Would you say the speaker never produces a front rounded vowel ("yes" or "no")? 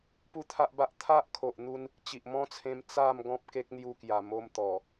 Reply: yes